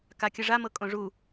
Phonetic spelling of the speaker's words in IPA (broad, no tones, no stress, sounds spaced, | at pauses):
k a kʲ ɯ ʐ a m ɤ kʼ õ ʐ u